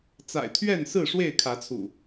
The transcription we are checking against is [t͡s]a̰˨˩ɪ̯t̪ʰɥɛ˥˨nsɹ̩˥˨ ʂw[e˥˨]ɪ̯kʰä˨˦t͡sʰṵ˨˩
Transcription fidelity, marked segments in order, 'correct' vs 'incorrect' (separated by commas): correct, correct